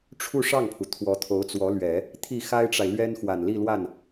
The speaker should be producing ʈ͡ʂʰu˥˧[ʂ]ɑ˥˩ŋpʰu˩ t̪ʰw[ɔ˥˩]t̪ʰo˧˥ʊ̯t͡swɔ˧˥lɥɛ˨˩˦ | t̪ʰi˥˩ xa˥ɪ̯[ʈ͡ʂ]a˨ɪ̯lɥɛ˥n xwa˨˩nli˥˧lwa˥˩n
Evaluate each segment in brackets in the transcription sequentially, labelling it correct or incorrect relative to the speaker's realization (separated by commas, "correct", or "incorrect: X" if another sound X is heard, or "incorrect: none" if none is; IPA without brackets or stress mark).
correct, incorrect: ɔ˧˥, correct